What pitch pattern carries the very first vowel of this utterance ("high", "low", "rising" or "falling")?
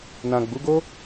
low